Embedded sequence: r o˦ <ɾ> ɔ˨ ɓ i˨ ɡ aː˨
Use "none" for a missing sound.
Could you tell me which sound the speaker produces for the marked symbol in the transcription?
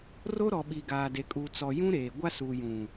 ɾ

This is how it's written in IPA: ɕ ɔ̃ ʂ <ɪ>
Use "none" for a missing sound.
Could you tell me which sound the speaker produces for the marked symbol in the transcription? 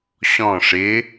ɪ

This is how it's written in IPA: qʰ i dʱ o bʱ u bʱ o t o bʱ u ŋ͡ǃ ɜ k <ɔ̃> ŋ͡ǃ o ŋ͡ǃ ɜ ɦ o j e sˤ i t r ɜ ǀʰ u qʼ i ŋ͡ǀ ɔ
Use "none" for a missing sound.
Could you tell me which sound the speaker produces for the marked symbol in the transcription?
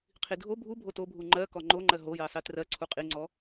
ɔ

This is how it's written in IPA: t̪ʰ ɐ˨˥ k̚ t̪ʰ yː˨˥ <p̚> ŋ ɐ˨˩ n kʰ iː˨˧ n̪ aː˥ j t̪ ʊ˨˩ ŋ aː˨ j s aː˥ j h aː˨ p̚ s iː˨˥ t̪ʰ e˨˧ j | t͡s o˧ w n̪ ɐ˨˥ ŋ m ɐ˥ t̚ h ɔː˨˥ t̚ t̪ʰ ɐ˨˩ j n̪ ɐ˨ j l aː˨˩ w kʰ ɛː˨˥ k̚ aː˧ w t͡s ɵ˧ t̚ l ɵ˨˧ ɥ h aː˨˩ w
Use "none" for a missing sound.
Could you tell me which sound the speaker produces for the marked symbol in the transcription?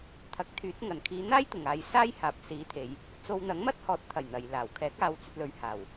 t̚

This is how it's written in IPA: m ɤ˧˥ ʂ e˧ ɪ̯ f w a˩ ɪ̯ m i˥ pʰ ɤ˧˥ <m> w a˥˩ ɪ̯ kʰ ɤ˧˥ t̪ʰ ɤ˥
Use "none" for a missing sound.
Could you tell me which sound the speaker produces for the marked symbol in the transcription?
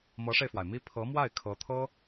m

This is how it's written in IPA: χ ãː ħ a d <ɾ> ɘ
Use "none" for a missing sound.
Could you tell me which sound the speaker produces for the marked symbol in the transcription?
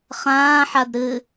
ɾ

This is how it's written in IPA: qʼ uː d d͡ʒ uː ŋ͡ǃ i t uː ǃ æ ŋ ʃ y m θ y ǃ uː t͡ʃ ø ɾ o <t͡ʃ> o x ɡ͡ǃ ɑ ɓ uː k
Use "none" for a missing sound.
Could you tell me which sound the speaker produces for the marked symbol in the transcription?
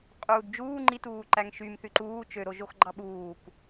ʒ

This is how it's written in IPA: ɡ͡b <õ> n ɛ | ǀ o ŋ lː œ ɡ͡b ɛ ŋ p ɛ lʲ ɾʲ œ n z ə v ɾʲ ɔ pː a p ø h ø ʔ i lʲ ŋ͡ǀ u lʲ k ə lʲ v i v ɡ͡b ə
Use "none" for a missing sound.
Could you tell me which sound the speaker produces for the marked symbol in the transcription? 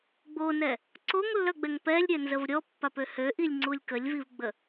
o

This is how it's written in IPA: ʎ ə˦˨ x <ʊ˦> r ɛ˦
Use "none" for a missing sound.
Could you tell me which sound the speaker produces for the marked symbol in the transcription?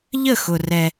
ʊ˨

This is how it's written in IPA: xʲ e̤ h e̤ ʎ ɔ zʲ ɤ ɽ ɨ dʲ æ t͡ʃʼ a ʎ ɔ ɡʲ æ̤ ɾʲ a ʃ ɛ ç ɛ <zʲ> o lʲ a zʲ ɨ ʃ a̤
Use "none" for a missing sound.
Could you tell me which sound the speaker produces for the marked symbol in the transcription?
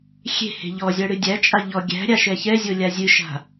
zʲ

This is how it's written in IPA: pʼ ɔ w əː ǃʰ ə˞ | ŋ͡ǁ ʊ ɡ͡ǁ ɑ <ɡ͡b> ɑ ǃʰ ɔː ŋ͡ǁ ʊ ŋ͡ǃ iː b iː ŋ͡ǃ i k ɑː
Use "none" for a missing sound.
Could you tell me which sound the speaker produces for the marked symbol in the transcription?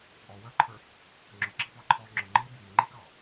b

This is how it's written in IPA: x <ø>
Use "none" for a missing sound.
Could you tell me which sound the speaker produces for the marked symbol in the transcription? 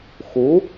u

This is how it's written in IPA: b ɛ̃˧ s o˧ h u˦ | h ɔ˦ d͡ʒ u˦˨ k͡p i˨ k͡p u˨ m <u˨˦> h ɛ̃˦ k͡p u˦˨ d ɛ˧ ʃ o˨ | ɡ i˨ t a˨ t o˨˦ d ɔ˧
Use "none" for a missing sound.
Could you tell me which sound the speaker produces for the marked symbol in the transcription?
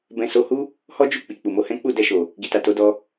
o˨˦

